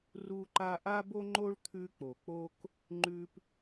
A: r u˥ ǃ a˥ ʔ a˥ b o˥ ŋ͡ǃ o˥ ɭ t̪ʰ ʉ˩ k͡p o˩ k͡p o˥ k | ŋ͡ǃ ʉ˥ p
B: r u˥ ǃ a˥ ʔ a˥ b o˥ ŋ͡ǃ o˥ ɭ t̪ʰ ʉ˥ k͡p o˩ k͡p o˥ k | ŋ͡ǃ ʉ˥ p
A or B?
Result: B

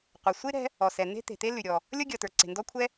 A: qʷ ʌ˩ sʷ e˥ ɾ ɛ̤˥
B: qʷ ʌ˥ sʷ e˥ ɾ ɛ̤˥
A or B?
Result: A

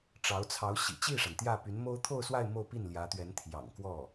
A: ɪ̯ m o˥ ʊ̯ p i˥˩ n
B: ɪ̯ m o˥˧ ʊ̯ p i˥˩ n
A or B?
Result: B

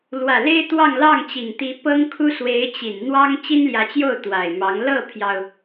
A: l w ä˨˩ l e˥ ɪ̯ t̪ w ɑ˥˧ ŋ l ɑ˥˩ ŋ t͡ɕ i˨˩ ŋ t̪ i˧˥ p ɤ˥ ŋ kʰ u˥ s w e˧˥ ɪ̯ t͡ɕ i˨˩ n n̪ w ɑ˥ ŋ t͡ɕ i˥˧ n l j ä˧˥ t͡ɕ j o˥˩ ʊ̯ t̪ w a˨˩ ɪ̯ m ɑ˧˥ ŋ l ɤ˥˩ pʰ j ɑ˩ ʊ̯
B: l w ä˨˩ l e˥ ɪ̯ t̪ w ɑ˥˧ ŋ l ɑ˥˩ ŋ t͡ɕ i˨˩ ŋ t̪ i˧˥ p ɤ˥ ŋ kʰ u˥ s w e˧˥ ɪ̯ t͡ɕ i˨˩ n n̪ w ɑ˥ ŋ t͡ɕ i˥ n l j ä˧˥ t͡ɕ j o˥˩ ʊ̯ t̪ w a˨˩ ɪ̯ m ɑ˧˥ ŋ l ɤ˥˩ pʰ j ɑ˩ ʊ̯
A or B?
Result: B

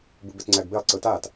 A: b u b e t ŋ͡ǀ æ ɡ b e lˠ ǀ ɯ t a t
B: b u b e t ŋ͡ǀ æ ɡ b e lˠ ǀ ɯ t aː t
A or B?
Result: B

